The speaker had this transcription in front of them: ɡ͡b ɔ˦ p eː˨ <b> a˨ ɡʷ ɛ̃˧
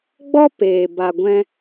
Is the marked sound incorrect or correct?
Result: correct